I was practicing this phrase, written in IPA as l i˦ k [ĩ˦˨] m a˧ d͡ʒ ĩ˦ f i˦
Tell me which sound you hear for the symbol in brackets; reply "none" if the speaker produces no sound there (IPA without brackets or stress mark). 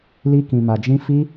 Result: ĩ˧